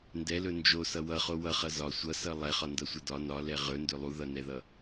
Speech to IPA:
ndɛlɵ nd͡ʒosʌ wʌχo wʌχʌ zɒ sʷʌsʌ lˠɛχɒndʌsʷʌ dɒ nɒlɛ ʁɵndɵ lˠuðʌnɛðʌ

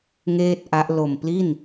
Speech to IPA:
ŋeː˥˩t̚ʔa˦˥ʔ lo˨˩mpli˥˩n

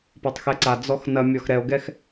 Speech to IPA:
patˤxɛǀa d͡zɔxnɐmʲɔx ɾɛo̯ɡɛx

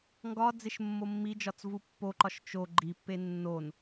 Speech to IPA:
ŋɡɒ d͡zeʃmːomːid͡ʒɒt͡s vupːoǃɒʃ t͡ʃo ɡ͡ǃipːe nːon

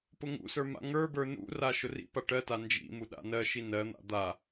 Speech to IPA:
pʊŋṵsə˞ ma̰ŋə˞bə˞ nṵra ʃʊrḭpa ʈɜta nd͡ʒḭ muɗa̰nɜʃi nɜn̪a̰ d̪a

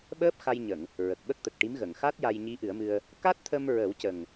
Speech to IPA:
ɓəː˦˥p̚ xa˧jɲə˨˩˨ŋ | ɹə˨˩k̚ɓə˦˥k̚t̪ə˨˩k̚ʈi˧˥m ɣə˨˩˨ŋxa˦˥t̚ ja˧jɲi˧˥ʔɨ˨˩˦ə̯mɨ˧ə̯ | ka˦˥t̚t̪ʰə˧mɹə˨˩˦wcə˨˩ŋ

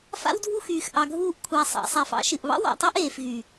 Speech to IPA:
fa̰˦wdʱu˦xyː˨x ʔɑ˨ɡʱuː˧ʔ kʷʰæ˨ sˤɑ̰˨sˤæ˨f ɑ̰˦ʃɨ˨ʔβɑ̰˦w ɑ̰˨tˤɨ˦ʔeː˨fɣy˨

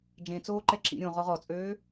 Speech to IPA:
d͡ʒẽt͡soːǃɛ ǁḭɾʲõ ʁɔʁɔt͡sʼøː

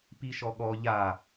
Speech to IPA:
piʃɔɠɔ ʎa

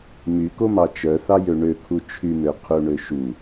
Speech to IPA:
mykomɑ t͡ʃœθɑjø ɳøkʰu t͡ʃʰymøqʰuɳø ʃu

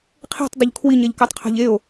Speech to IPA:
qʰe̤tˤdˤʊʎ kʰwiɲɛʎkatˤqʰa̤ʎ eo̯

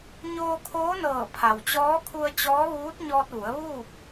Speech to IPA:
ɲoː˧kʰoː˧˥nɤː˧˩ pʰa˩wt͡ɕɔː˧˥ kʰu˧ə̯t͡ɕɔː˧˥ʋuː˧˥t̚ ɲɔː˧t̚ʋu˩˧ə̯ʋuː˥˨p̚

